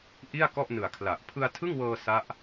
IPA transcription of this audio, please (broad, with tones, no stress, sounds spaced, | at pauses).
ʔ i˥˩ a̯ k ɔ˥˩ ʔ n ɯ˨˩ a̯ kʰ l a˨˩ ʔ pʰ ɯ˧ a̯ tʰ ɯ˥˩ ŋ w ɤː˧ s a˦˥ ʔ